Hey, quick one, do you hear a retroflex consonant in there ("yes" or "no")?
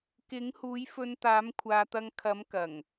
no